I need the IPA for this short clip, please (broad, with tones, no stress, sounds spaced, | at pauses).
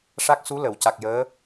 ʂ a˦˥ k̚ s u˧˥ l ə˨˩˨ w c a˨˩ k̚ j əː˧˥